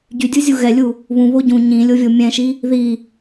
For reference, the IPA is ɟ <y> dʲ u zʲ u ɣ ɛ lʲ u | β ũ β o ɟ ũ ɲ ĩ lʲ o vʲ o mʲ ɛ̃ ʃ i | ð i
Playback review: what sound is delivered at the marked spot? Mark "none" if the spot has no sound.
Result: y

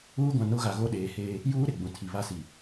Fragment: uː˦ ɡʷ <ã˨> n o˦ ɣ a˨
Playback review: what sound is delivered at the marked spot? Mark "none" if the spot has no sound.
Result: ã˨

